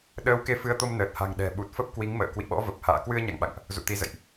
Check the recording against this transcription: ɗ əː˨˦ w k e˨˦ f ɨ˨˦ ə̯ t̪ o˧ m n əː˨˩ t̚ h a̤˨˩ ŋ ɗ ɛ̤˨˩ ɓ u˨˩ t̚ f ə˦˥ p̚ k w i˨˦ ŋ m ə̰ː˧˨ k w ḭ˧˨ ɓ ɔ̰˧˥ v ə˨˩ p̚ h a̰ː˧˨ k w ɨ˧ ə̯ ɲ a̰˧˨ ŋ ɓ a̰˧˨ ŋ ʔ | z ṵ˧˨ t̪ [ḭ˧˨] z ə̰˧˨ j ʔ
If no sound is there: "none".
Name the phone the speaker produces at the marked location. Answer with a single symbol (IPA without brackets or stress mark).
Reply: i˨˦